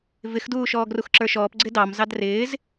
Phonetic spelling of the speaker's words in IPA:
v ɪ x d uː ʃ ɔː ɡ r u x ǁ ə˞ ʃ ɔː p ɡ͡ǀ ɪ d ɑ m z ɑ d r ɪː z

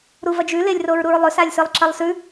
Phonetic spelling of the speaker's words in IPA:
ɾ u v ɐ d͡ʒ ʉ l e lʲ r o ɹ ɾ u ɹ lˠ ɵ s a lʲ s ɨ lˠ ǁ ɐ lˠ s ʉ

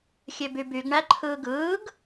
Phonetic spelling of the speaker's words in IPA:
xʲ ø b y b y ɡ ɳ æ ǃʰ ɯː ɡ ɯː ɡ

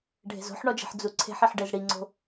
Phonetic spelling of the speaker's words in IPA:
ɖʱ e̤ z o̤ ħ ɳ ɔ d͡ʒ e̤ ħ d͡z u ǀʰ e̤ ħ i ħ ɖ e z ɽ i ŋ͡ǀ o̤

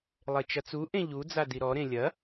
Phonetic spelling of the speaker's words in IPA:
lˠ e t͡ʃ ɐ t͡s u ʔ ẽ ʎ u d͡z a d i ɾ ɔ ɾ ẽ lʲ ɐ

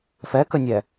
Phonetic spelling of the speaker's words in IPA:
f ɛ k ə nʲ ɛ

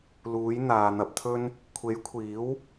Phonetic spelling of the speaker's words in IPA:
l uː˨˥ j n̪ aː˨ n̪ ɐ˧ p̚ t̪ʰ ɵ˥ n | kʷʰ e˨˥ j kʷʰ iː˨˥ w

